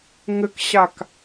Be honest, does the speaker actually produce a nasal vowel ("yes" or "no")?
no